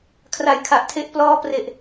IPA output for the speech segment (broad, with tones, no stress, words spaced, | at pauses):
kʰra˨˩jkʰa˨˩ʔtʰe˦˥ʔ plɔː˦˥pre˨˩ʔ